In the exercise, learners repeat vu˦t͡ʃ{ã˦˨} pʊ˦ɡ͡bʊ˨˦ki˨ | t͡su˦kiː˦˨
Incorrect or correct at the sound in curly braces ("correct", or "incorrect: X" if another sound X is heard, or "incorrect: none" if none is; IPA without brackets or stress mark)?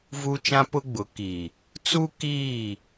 incorrect: ã˦